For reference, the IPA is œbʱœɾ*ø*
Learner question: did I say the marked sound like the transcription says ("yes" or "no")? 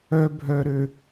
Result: yes